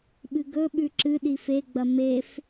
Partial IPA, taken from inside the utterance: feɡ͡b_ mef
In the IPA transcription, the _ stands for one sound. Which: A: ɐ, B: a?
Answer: A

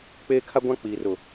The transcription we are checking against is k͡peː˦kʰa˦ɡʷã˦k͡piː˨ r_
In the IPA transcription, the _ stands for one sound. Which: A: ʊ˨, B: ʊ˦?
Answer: A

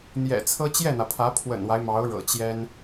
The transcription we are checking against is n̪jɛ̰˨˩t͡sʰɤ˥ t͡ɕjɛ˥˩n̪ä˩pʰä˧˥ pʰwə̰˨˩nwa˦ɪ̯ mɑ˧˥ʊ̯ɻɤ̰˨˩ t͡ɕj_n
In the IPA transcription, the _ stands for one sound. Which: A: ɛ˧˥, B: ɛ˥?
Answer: B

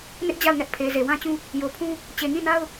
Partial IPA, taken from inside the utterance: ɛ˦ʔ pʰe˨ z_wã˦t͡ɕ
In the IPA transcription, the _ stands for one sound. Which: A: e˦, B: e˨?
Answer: B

